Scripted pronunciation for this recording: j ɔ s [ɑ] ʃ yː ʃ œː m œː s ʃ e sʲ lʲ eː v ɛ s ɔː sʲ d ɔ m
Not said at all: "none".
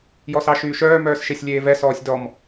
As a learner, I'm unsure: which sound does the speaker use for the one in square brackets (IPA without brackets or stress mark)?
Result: ɑ